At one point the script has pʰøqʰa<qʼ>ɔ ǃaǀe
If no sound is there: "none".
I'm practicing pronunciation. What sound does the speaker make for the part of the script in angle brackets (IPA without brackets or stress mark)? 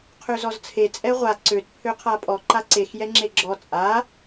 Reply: pʼ